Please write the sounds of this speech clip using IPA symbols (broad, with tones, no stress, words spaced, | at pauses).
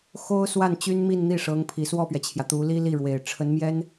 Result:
xo˥ʊ̯swa˥˩n t͡ɕy˥nmi˥˧nn̪i˥˩ʂɤ˧˥ŋ pʰi˨˩swɔ˥˩pɥɛ˩t͡ɕʰjä˩ t̪u˧˥li˥li˥˩ɻwe˨˩ɪ̯ ʈ͡ʂʰə˧˥nmjɛ˥n